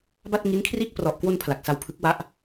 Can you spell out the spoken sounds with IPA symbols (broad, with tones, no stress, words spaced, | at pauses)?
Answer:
ba˥˩t̚ŋi˦˥nkʰriː˥˩k̚ prɔ˨˩ʔkwo˧n pʰla˨˩k̚sa˧wpʰɯ˦˥k̚wa˦˥ʔ